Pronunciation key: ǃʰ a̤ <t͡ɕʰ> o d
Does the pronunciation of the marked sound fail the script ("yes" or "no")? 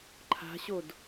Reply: yes